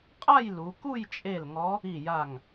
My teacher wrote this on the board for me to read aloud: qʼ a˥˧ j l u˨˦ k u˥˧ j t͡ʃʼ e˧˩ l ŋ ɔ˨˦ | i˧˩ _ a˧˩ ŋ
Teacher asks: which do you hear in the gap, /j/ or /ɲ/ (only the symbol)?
j